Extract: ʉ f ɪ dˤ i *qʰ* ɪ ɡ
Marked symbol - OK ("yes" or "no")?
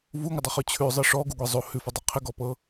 yes